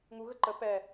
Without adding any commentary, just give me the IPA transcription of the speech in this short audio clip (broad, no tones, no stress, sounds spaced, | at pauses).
ŋ u ɣ ə ǃ ə p ɛ